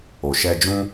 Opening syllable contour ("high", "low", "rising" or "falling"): low